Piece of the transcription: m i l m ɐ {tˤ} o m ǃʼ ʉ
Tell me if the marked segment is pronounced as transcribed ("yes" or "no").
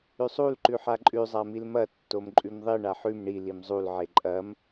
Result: no